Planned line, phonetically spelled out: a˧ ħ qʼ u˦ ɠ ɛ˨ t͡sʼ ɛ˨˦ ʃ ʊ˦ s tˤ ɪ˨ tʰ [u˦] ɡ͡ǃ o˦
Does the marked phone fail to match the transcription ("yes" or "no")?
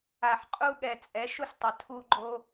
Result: no